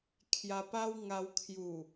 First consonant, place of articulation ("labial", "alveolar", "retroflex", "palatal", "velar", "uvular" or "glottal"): velar